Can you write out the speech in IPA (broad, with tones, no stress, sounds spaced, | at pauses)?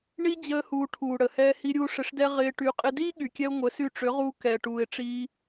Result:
ɳ i˦ d͡ʑ əː˦ h uː˧ ʈʰ uː˨ ɽ ə˨ h ɛː˧ h i˧ ɾʲ uː˧ ʂ ɪ˧ ʂ d ɛ˦ ʁ ɪː˧ ʈ y˧ qʼ ɪ˦ d iː˦ ɠ y˨ kʲ ɛ˧ ʊ̯ ŋʷ ə˨˦ s y˧ ʈ͡ʂ ʏ˨˦ ʁ uː˧ k ɛː˨ ʈ uː˨ ɪ̯ ʈ͡ʂ iː˧